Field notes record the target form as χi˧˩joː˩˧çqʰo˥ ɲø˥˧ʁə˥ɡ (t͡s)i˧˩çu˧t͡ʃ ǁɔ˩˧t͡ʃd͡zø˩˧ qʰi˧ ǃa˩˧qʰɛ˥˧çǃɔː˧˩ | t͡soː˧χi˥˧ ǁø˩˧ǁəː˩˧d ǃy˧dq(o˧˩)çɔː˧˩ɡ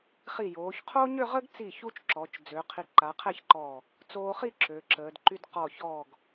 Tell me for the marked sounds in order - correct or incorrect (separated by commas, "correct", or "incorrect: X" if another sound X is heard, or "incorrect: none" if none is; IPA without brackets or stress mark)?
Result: correct, incorrect: ɔ˧˩